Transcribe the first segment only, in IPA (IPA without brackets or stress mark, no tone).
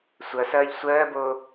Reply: sʷ